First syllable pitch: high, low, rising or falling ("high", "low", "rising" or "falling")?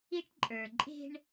high